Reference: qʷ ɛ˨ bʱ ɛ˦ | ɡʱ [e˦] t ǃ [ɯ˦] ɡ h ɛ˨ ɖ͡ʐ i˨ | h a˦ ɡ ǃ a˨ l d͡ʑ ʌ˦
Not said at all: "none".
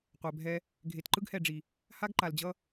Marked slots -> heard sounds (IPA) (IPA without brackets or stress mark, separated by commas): e˨, ɯ˦